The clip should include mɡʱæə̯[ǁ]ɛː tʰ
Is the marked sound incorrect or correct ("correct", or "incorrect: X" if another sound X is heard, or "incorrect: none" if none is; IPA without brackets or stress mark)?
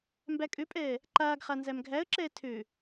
correct